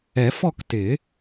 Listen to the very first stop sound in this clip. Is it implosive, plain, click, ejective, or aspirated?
plain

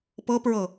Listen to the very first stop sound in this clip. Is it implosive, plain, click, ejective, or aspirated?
plain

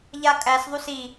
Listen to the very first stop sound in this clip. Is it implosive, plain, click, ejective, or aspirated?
ejective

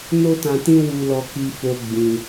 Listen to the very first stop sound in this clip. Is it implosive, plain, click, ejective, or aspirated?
plain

